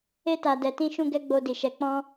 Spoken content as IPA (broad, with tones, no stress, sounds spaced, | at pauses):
e˧ t a˨ d ɛ˨ t ĩ˧ ʃ ũ˦ ɡ ɛ˦ ɡ͡b o˧ d i˨ ʃ ɛ˨˦ k͡p ɔ̃˦